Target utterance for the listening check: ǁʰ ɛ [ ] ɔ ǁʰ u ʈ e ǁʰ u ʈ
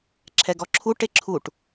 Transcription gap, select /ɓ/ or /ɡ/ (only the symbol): ɡ